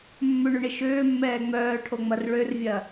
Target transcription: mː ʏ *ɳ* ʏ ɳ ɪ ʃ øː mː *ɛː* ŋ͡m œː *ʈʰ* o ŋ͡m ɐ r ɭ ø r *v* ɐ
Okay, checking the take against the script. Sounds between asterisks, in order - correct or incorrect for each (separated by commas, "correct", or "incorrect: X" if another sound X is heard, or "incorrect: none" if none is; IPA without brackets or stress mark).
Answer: correct, correct, correct, incorrect: vʲ